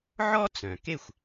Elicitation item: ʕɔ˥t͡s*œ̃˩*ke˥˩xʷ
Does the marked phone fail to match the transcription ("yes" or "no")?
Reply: no